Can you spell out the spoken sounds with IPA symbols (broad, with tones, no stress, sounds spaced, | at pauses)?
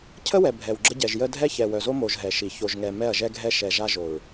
cʰ ə˦ w ɛ˨ bʱ ɛ˨ w ɡ͡ǁ ə˦ ɟ ɛ˨ ʒ j ə˦ dʱ ɛ˦ ç ɛ˨ w œ˨ z o˦ m o˨ ʒ ɦ ɛ˨ ʃ i˨ ç o˨ ʒ ŋ ɛ˨ m ɛ˦˨ ɐ̯ ʒ ɛ˦ ɡʱ ɛ˦ ʃ ɛ˨ ʒ a˦ ʒ o˨ ɹ